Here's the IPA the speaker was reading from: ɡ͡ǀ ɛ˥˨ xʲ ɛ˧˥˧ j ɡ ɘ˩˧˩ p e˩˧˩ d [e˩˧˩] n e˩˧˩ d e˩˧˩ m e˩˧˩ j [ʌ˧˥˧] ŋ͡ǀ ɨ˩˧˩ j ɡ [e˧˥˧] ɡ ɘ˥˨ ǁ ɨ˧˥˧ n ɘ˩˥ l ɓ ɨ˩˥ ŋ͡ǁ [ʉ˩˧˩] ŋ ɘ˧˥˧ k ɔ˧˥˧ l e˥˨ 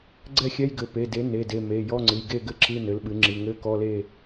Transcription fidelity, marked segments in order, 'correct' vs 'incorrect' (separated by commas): incorrect, incorrect, incorrect, incorrect